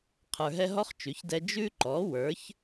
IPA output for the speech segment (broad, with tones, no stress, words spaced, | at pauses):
qʰə˞˨ɦɛ˦ ɦɔ˦χ t͡ʃʉ˩˥çdɛ˦ d͡ʒʉ˦ǃɔ˩˥ wə˞˩˥ç